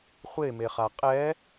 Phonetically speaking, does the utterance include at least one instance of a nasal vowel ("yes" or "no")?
no